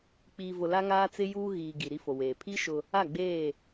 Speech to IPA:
k͡p iː˨ v ʊ˨ l a˦ ŋ aː˦ t͡s ɪ˦ j uː˦ ɣ iː˨ ɡ i˨ ɾ i˦ f o˨ w eː˨ pʰ i˦ ʃ ʊ˦ | a˦˨ ɡ͡b eː˦˨

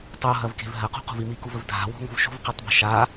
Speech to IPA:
tˤ u ɦ ɐ v k e̤ v ɦ ɐ q ṳ q ṳ v i m i k u v ɵ v dʱ a̤ w o̤ ŋ o̤ v ʃ ṳ v q e tˤ b o̤ ʃ a

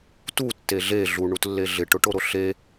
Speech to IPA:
t u tː e ɮ e ɮ u ɳ u t lː e ɮ ɪ ʈ ʊ ʈ o ɾ o ɬ e

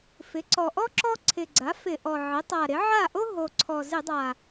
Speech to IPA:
f ɪ˩˥ ǀ ɔ˨˩ ʔ ɔ˥ ǁ ɔ˥ ǀʰ ɪ˨˩ ɡ͡ǀ a˩˥ f ɪ˧˩˧ ʔ ɔ˨˩ ʕ ɪ˩˥ tˤ a˨˩ ɾ ɪ˩˥ ʕ a˥˩ ʔ o˥ ɦ o˨˩ ǀʰ ɔ˨˩ z ɪ˧˩˧ dˤ a˨˩

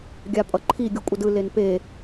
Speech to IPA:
ɡʲ a pʼ ʌ ǃʰ i ɡʲ u kʷʼ ʌ d ɯ l e n p e

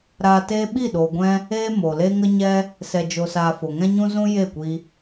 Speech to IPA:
ɾ aː˧ t eː˦ ɓ i˦˨ ɗ oː˨ ɡʷ ɛ̃˧ | eː˦ m o˨ l eː˦ ŋ ə˦ ɲ ɛ˦ | s ɛ˧ d͡ʒ o˧ s aː˧ f o˨ ŋ ɛ̃˦ ɲ ũ˦ z ũ˦ j e˦˨ kʷ i˧

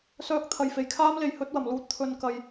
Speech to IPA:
s œː˧ k̚ t̪ʰ ɐ˨ j f e˨˩ j kʰ aː˥ m l e˨ j h ɵ˨˥ t̚ w ɐ˨˩ m l uː˧ t̚ t̪ʰ ɵ˧ n k ɐ˧ j

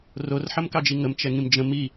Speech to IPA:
r o r ħ ə m k ɑ d͡ʒ i ŋ ə m t͡ʃ ɛ ŋ ĩ m d͡ʒ ə̃ m i

